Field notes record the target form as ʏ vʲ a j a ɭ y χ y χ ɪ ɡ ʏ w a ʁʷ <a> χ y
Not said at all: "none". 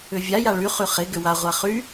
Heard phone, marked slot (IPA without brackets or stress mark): a